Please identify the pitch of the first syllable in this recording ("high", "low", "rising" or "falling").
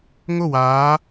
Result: falling